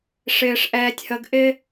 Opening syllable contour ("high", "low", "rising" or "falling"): low